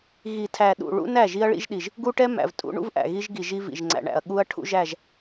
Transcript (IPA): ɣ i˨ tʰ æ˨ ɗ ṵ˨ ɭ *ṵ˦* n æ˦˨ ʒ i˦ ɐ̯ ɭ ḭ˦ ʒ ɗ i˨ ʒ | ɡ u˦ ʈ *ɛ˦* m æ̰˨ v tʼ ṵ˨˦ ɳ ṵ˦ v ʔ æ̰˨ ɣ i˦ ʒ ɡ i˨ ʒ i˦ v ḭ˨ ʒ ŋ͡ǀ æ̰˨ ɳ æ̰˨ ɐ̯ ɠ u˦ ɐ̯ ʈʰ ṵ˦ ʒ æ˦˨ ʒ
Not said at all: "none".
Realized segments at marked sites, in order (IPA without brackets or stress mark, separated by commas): ṵ˦, ɛ˦